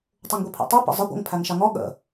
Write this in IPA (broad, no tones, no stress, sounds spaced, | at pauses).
tˤ u ŋ ɡʷ i pʰ ḭ tˤ u p ə̰ zˤ ə ɡʷ ə̰ ŋ pʰ æ ŋ ʃ ɑ ŋ ɔ ɠ ə̰